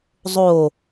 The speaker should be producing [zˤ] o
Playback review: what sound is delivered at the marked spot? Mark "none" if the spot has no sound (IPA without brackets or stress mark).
zˤ